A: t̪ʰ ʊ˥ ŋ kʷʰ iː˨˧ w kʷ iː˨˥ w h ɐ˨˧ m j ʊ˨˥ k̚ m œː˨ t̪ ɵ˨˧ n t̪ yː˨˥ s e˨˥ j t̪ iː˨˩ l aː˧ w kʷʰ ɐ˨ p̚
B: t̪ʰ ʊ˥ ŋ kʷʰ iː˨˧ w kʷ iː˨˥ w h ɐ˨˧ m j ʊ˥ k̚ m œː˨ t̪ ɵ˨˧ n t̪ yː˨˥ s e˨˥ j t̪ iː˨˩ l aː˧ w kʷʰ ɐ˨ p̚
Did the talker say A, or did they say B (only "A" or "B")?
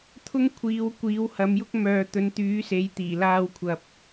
B